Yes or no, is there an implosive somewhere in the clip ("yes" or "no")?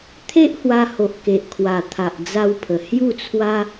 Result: no